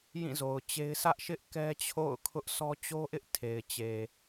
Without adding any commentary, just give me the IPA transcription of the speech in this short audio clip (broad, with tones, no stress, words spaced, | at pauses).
jĩ˦˨zo˨ʊ̯t͡ɕe˦ɪ̯ sʰä˦ʔʃɪ˦ʔ kɛ˦t͡ɕʰo̰˦˨ʊ̯ kʰʊ˦ʔsɔ˦ t͡ɕo˦ʔɪ˦ʔ tʰe˨ɪ̯t͡ɕe˨